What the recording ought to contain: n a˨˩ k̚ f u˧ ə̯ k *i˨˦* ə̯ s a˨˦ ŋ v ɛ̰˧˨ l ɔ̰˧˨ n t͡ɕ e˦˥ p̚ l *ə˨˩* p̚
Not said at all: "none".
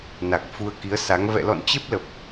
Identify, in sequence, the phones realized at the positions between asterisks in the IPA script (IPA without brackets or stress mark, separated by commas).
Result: i˨˦, ə˨˩